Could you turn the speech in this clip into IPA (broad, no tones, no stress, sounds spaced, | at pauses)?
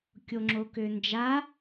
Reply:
kʲ o ŋ͡ǁ o k ø n d͡ʒ a